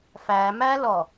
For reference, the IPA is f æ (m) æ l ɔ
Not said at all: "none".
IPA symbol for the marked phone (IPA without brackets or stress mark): m